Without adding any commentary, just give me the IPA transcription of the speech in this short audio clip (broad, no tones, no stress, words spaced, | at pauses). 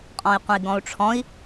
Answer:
qʼɔ̃i̯qʷə̃i̯ɡɔ̃u̯ʈ͡ʂʰɔ̃i̯